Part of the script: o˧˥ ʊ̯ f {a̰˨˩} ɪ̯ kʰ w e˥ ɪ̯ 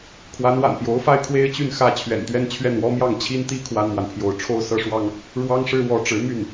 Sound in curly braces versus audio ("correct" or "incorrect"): incorrect